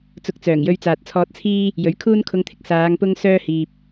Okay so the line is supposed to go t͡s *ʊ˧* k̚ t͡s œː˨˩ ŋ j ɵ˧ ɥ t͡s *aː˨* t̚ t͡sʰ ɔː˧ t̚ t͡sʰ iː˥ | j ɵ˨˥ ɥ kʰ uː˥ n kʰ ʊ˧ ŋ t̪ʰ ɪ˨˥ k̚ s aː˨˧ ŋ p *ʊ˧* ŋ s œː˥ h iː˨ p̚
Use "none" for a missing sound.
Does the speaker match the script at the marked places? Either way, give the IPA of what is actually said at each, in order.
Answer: ʊ˧, aː˨, ʊ˥

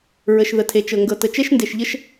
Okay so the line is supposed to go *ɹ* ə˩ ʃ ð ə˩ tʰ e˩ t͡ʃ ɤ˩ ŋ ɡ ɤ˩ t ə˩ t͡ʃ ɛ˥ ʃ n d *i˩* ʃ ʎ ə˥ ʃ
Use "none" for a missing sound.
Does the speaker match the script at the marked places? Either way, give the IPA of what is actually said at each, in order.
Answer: ɹ, e˩

